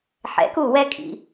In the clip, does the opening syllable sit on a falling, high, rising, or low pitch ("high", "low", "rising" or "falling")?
rising